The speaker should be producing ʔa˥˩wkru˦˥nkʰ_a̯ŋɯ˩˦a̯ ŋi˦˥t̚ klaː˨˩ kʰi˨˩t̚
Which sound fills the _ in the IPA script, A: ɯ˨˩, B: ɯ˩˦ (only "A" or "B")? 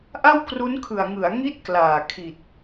A